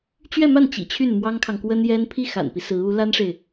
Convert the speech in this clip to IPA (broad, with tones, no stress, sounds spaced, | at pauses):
t͡ɕ ɥ ɛ˥˧ m a˥˩ n t͡ɕ ḭ˨˩ t͡ɕʰ y˥˩ n m w ɑ˥ ŋ kʰ ɑ˨ ŋ k w ə˥ n j ɛ˥ n pʰ i˥˩ x a̰˨˩ n p i˦ s ɹ̩˧˥ u˧˥ l a˥ n ʂ e˨ ɪ̯